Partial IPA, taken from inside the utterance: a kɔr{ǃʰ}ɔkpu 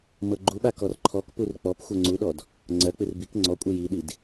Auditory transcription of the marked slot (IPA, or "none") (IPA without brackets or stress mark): ǃʰ